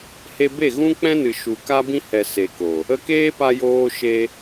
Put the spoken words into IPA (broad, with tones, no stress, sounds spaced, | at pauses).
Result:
h e˧ b e˦˨ ɣ ũ˦ k͡p ɛ̃˦ n ɨ˨ ʃ u˨ k a˦ b ĩ˦ h ɛ˨ s e˨ k o˨ | ə˧ k eː˦ p a˧ j oː˧ ʃ e˧